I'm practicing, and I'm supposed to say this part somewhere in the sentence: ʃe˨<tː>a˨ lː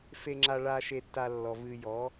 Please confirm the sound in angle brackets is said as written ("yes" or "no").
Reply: yes